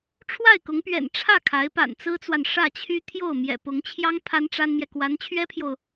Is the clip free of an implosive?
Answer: yes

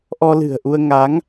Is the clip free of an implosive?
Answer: yes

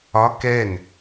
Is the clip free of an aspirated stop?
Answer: yes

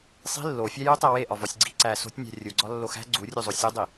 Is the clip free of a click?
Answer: no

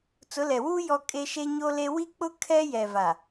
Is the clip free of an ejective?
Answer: no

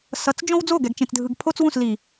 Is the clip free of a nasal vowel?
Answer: no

